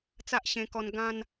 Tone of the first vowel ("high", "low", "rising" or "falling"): high